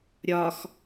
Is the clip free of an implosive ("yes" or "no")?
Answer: yes